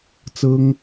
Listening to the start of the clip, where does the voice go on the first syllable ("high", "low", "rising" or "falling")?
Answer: high